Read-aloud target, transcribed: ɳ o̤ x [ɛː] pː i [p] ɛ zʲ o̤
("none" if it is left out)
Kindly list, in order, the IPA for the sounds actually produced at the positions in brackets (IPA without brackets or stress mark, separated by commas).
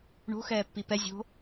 ɛː, p